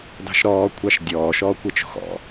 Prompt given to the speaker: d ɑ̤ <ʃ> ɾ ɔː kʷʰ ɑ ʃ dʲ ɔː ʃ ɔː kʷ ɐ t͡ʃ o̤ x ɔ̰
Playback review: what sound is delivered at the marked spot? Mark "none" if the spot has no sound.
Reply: ʃ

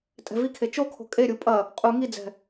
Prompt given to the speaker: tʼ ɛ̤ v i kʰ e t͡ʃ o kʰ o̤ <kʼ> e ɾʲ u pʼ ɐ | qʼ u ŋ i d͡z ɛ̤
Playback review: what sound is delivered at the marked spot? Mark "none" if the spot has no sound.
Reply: kʼ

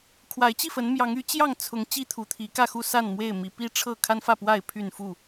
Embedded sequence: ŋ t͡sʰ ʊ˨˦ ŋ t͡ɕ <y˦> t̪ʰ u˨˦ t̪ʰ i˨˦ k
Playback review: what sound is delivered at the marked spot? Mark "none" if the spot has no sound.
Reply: i˦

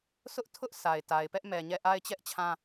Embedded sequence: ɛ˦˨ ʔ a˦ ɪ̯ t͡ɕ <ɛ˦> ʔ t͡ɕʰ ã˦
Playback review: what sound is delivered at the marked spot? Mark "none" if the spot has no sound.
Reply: ɛ˦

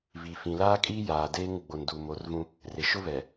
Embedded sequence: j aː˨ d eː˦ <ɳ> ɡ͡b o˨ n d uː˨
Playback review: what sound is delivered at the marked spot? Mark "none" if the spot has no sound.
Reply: ŋ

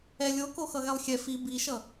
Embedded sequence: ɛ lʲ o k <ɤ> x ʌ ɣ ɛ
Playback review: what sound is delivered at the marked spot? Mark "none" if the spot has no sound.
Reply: o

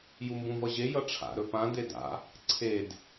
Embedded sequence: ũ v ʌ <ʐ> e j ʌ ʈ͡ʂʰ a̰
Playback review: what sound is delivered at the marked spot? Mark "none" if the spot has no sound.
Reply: ʑ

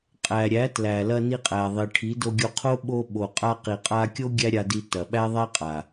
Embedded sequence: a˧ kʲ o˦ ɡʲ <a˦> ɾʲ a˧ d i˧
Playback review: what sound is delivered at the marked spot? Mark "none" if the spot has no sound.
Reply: æ˦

